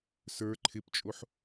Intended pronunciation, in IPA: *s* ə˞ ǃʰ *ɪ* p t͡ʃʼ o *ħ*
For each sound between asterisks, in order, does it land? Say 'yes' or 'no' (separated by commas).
yes, yes, yes